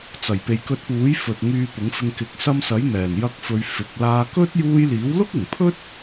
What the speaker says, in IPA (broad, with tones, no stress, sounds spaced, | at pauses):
t͡s ɐ˨˩ j p e˨ j k ɵ˧ t̚ p uː˨˥ j f ɵ˨ t̚ ŋ yː˧ p ʊ˨˥ ŋ f ɪ˧ ŋ k ɪ˨ k̚ s ɐ˧ m s ɐ˨˥ j n̪ ɛː˨˩ n j ɐ˧ k̚ f ɵ˨˧ ɥ f ɪ˨˥ k̚ l aː˧ k ɵ˥ t̚ j uː˧ j l iː˨˥ w l ʊ˥ k̚ ɪ˨˩ ŋ pʰ ɵ˥ t̚